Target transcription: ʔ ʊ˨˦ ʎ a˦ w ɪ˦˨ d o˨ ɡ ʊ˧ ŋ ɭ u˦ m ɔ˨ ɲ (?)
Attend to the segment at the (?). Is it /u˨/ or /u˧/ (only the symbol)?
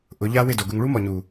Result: u˨